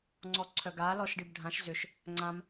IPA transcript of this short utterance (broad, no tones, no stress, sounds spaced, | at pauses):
ŋ͡ǀ ɔ ǀʰ œ ɡ a l ɔ ʃ ɖ i b ɖʱ ã ʃ z ʏ ʃ | ŋ͡ǀ ã m